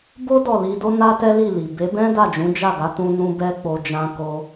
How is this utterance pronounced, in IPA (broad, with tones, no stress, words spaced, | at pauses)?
bo˦ dɔ˦˨li˧do˦ na˦tɛ˦li˦˨li˨ be˨˦bɛ̃˦da˦˨ d͡ʒũ˨˦d͡ʒa˦˨ɡa˨˦tũ˧ nũ˦bɛ˦ k͡po˧d͡ʒã˧ ko˧